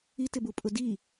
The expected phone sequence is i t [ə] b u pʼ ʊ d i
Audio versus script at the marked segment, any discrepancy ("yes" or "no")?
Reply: yes